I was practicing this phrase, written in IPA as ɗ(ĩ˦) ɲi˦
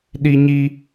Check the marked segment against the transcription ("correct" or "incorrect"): incorrect